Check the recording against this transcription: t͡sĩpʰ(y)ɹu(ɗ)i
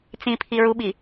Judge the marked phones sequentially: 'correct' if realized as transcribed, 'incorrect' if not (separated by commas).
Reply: incorrect, incorrect